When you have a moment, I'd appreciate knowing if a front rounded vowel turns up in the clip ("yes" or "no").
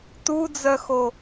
yes